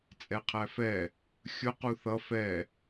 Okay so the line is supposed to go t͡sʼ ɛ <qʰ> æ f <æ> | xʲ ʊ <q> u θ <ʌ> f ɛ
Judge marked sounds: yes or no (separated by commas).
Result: yes, no, yes, yes